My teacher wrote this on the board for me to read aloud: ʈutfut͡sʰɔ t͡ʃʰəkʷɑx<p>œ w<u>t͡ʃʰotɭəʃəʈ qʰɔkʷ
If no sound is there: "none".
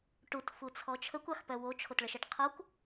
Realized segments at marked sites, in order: p, o

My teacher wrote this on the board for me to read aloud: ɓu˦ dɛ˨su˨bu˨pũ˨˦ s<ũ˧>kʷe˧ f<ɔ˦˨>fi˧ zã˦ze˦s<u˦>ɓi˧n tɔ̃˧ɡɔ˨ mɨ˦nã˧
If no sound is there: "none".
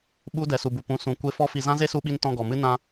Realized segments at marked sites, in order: ũ˨, ɔ˦, u˧

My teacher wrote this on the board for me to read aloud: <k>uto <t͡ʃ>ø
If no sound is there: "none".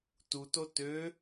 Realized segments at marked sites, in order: t, t

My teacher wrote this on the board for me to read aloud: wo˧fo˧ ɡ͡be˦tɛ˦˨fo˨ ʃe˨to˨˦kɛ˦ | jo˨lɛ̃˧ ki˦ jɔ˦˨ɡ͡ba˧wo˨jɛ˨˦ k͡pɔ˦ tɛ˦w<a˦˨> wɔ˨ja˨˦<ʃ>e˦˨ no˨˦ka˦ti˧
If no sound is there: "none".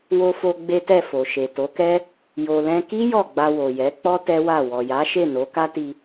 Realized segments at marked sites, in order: a˦˨, ʃ

